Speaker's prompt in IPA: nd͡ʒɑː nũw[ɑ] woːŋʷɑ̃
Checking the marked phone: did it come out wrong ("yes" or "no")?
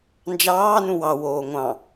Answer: no